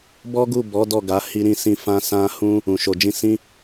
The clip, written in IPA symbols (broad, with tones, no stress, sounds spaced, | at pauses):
b ɔ˦ ɡ u˦˨ b ɔ˨˦ d ɔ˦˨ ɡ a˨˦ h i˦ ɾ ĩ˦ s ĩ˦˨ f ã˧ s ã˧ h ũ˧ | ũ˨ ʃ o˨ d͡ʒ ĩ˧ s ĩ˧